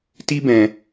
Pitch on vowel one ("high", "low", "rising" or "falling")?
high